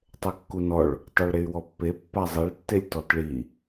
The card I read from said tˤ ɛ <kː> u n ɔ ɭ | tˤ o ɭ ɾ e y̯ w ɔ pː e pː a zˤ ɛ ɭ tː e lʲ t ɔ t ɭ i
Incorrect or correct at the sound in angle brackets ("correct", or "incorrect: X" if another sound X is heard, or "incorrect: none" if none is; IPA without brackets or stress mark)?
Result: correct